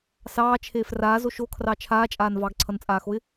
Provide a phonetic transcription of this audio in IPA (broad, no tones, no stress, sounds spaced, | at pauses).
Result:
s ɑː t͡ʃʰ eː f r aː z o ʃ o kʰ r ɑ t͡ʃʰ aː t͡ʃʼ aː n v ɑ ɡ ǀʰ ʌ n t͡sʼ aː x o ɪ̯